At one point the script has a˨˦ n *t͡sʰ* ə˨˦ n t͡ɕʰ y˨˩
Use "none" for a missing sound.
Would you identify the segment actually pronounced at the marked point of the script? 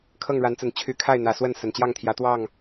t͡s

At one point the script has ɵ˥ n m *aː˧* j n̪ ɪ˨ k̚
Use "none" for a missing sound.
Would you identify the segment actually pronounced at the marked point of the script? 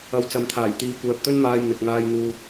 aː˧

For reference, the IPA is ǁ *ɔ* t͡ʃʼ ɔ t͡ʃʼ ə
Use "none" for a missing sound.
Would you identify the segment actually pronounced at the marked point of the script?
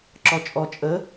ɔ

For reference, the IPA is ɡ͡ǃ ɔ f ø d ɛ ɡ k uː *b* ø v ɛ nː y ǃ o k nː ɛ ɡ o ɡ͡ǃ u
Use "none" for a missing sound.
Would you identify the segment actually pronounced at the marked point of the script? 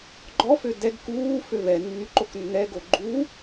f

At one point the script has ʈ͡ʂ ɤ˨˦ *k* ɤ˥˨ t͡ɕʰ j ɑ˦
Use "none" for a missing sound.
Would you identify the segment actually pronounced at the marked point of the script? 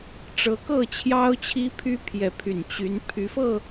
k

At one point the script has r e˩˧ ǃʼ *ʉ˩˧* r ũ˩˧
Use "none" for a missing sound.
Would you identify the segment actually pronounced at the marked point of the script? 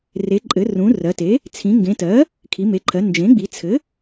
ɘ˩˧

